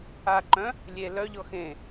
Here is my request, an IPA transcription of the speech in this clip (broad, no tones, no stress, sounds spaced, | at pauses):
a ǃ œ̃ | lʲ e l œ ʎ ɔ x ẽ